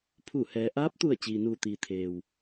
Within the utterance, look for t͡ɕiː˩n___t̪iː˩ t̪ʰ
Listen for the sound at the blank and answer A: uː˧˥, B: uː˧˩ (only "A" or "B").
B